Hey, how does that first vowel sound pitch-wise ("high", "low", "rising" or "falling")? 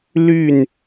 falling